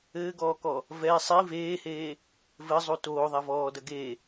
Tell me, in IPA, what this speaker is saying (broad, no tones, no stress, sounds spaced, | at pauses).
ɘː ɡ ɔː k ɔ | v ɛ sˤ i v eː h eː | v ɘ zˤ u t oː ðˤ a v ɔː d ɐ ɡ e